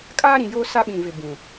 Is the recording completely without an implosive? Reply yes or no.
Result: no